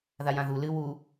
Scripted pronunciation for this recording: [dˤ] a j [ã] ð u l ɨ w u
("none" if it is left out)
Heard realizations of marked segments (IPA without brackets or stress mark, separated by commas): ð, ã